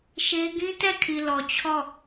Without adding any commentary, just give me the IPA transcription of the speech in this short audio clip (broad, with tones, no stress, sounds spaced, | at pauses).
ʃ e˦ ɡ ĩ˦ t ɛ˦˨ kʰ i˨ l ɔ˨ t͡ɕʰ ɔ˦˨